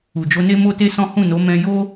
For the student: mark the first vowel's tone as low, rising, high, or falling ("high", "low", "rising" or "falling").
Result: low